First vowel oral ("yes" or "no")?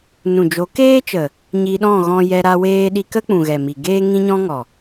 no